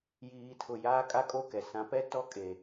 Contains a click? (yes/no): no